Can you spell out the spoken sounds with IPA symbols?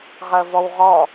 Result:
ʁəːvɔwʁɔ

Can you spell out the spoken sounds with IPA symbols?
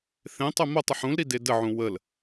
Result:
θẽtˤʏ motˤʏħ ũlɾi dedəʕũ wəl

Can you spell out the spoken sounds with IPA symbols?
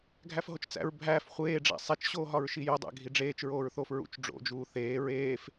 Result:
ɡʱæfɦot͡ʃt͡sæ̰ɹ bʱæːf χʷeːɖ͡ʐæ̰ sˤet͡ʃɕoːɦɒɹ ʃijodˤæ̰ ɡʱiɖ͡ʐeːt͡ʃɹoːɹθoːf ɹṵt͡ʃɖ͡ʐo̰d͡ʒuː θeː ɹeːf

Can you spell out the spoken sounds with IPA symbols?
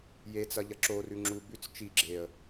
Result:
jet͡sɐʎɐ ǁorʉ ŋ͡ǁu bʉt͡s t͡ʃi ɡ͡ǁeə̯

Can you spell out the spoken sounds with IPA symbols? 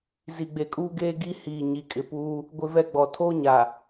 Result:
zi˨ɡ͡be˨kʼuː˦ɡeː˦ ɡi˦hiː˨ ɲi˨kʼɪ˨puː˦ | ɡʷɪ˦vɛ˦ɡ͡bɔ˨ tʰoː˦ ɲa˨

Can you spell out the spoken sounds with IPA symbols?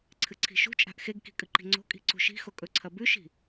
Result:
ǀʰɨǀʰi̤ʃṳt͡ʃʼa̤ʔ xeɡki̤ kʼɨǃi̤ŋ͡ǀo̤kʼi̤ ǀṳʃi̤xo kʼɵǀʰɐ bʉʃi̤

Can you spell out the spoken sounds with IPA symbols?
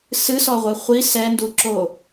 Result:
sɨsɔʁʷɛ χʷi sɛnduǁo

